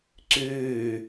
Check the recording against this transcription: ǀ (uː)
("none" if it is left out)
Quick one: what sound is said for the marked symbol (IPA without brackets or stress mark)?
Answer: ʉː